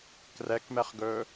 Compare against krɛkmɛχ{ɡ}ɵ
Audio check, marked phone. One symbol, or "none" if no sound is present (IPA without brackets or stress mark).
ɡ